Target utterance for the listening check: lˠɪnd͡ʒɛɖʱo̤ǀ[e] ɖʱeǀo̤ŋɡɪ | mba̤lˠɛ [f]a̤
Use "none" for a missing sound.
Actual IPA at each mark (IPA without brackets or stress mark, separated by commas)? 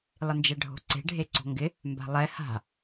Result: e̤, h